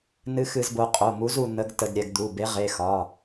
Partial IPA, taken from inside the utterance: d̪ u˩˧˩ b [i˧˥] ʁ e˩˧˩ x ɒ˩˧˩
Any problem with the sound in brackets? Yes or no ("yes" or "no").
yes